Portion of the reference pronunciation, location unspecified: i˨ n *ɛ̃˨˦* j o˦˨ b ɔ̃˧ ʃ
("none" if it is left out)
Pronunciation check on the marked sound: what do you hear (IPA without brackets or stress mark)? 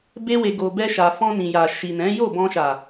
ɛ̃˨˦